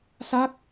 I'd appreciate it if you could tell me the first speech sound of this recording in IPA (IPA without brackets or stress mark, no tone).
s